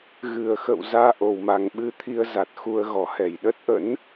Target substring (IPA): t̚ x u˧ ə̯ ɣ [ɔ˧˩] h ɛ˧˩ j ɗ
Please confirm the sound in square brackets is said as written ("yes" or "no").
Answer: yes